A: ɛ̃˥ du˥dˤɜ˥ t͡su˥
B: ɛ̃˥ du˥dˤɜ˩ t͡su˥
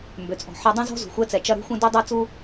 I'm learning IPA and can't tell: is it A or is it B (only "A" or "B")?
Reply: A